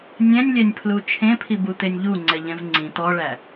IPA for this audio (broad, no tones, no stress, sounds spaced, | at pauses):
nʲ ɛ̃ nʲ lʲ ɛ nʲ pʰ l u t͡ʃʰ ẽ pʰ i b u t̪ e nʲ ʎ u ŋ͡ǀ ɛ ʎ ɛ̃ v ŋ͡ǀ ĩ t̪ ɔ ɭ æ